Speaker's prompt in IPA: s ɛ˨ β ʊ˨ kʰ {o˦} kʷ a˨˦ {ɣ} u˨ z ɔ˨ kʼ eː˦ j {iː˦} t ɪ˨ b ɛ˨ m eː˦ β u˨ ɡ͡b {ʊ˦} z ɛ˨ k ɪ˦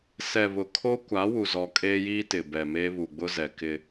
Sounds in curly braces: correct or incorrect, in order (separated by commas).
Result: correct, incorrect, correct, correct